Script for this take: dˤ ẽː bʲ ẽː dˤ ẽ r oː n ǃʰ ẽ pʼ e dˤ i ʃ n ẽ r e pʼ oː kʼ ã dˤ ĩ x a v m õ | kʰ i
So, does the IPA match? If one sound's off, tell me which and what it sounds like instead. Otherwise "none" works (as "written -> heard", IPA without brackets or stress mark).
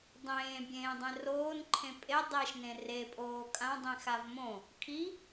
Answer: none